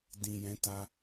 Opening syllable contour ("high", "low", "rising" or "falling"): low